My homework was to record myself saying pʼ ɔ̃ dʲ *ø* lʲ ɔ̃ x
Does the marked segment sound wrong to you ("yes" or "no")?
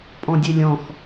no